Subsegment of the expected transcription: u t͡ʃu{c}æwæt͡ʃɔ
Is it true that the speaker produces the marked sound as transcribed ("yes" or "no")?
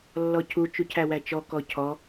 no